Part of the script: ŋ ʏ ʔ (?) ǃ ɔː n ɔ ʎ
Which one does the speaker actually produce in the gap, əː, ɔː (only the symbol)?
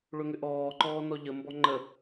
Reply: ɔː